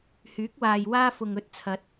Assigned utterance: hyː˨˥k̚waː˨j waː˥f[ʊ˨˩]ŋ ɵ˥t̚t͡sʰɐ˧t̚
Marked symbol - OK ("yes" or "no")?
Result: no